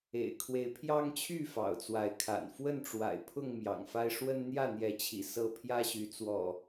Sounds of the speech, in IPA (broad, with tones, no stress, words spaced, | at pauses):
ḛ˨˩ɪ̯kʰwe˨˦ɪ̯pʰjɑ˦ŋt͡ɕʰy˥˨ fɑ̰˨˩ʊ̯t͡swa˨˦ɪ̯kʰa̰˨˩n fwə˥˨nʈ͡ʂwa̰˨˩ɪ̯ pʰʊ˥˨ŋ mjɑ̰˨˩ŋfa˦ɪ̯ ʂwə˦nn̪jä˥˨n̪jɛ˨˦t͡ɕʰḭ˨˩ sɤ˥˨ pʰjä˦ɕy˨˦t͡swɔ̰˨˩